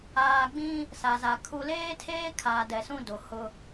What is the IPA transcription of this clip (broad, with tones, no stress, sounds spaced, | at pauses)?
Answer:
aː˨ ɡ͡b ĩ˦ | s a˨ z a˨ kʰ u˨ l eː˦ tʰ eː˦ kʰ aː˨ d ɛ˨ s ũ˦ d o˨ h ʊ˦